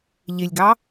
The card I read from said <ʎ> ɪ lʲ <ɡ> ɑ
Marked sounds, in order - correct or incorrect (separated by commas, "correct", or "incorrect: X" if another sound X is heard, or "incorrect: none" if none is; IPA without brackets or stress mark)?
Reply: correct, correct